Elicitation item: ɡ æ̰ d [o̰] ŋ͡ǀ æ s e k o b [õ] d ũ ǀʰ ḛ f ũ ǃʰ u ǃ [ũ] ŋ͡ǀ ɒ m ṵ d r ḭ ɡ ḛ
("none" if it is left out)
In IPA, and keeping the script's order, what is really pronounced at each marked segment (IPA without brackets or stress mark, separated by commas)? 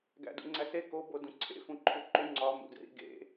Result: ṵ, o, u